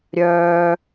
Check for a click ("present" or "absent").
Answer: absent